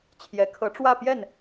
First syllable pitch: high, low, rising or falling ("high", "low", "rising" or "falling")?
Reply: rising